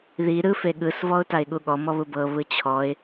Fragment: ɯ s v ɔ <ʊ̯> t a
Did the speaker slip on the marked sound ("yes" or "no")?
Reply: no